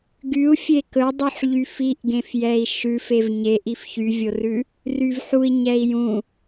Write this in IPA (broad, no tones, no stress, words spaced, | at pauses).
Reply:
ɡyu̯fʲe kɵdˤyħ ʎyfiʔɡẽf jɛi̯ʃʉfev ɲeʔif çyvʲorʉ | ryvħui̯ ɲɛi̯jũ